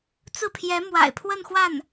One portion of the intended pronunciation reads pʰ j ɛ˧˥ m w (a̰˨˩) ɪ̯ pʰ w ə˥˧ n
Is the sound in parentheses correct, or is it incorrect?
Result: correct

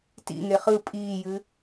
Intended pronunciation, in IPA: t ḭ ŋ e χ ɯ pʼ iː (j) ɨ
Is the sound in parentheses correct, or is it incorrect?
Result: correct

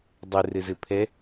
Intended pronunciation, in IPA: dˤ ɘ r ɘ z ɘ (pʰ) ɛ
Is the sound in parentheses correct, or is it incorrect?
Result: correct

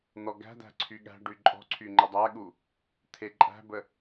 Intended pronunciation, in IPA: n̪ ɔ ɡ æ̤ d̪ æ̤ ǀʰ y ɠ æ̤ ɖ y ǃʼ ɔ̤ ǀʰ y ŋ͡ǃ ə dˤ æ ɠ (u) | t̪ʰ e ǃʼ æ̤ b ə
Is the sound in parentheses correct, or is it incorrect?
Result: correct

